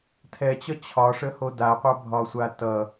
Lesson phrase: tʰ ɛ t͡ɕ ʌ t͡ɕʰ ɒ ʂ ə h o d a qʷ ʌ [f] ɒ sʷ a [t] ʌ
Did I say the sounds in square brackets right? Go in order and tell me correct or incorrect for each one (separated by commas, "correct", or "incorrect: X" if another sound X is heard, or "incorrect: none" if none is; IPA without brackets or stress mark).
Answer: incorrect: bʱ, correct